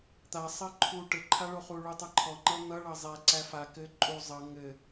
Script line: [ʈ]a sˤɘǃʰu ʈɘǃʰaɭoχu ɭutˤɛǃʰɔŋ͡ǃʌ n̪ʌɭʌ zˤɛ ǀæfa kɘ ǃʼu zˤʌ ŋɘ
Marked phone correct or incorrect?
incorrect